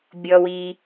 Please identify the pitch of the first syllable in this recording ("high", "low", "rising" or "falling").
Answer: low